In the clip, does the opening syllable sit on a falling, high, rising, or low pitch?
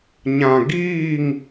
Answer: low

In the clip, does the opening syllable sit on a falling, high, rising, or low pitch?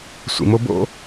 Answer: low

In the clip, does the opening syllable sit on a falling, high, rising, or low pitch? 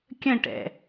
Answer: falling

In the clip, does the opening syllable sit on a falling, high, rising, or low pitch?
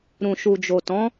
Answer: low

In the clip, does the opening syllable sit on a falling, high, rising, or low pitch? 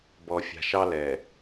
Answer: low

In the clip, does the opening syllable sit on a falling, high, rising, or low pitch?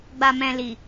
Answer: low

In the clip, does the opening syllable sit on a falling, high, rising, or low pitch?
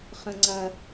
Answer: low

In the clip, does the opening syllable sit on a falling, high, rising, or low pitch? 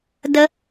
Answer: high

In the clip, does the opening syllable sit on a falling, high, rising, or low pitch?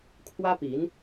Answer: high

